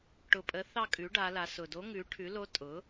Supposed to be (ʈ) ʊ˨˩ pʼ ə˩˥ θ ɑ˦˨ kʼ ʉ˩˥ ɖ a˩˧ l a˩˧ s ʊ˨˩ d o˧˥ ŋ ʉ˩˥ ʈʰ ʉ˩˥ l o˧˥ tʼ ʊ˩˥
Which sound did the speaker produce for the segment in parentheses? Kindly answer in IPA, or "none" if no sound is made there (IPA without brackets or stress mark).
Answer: ʈ